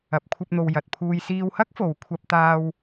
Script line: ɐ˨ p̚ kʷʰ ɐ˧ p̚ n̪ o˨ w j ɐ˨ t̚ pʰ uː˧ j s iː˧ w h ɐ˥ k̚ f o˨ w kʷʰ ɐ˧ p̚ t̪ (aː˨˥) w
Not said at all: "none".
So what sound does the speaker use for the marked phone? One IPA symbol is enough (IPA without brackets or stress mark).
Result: aː˧